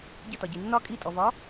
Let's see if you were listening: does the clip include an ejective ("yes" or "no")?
yes